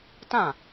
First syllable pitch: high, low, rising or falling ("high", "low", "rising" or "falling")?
falling